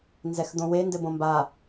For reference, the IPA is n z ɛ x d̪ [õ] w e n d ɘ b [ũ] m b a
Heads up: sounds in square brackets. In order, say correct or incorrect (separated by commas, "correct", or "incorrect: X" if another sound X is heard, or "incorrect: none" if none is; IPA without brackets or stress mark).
correct, incorrect: õ